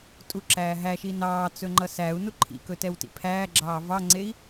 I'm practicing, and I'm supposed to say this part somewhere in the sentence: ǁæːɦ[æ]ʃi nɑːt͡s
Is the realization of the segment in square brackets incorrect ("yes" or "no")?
no